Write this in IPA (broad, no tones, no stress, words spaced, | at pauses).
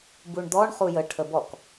buɳd̪ɔɳ χujə ʈʰəbɔk